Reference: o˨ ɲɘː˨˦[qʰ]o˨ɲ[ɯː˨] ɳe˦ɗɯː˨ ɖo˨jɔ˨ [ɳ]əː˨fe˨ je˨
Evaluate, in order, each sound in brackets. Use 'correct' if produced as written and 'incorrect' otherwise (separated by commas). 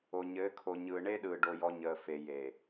incorrect, correct, incorrect